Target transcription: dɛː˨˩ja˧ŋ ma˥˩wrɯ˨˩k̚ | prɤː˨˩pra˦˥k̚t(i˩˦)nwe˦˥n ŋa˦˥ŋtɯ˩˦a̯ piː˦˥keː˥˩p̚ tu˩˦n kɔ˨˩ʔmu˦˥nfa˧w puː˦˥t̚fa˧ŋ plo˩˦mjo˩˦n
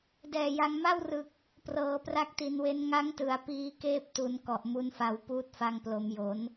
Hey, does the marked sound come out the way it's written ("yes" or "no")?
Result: yes